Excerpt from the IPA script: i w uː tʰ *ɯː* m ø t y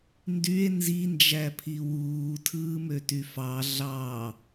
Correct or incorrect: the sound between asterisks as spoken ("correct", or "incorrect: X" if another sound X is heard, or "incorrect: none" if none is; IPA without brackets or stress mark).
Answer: correct